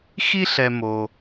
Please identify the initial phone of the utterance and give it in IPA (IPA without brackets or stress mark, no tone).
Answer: x